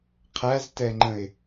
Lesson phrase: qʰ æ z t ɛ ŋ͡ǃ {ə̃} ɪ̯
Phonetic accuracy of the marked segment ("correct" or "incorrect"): correct